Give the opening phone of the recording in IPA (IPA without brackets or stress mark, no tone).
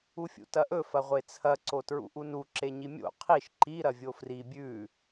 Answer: u